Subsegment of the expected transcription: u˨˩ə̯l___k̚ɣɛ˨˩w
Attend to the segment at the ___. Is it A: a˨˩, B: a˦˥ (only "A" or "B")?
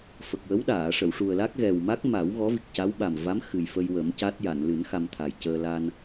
B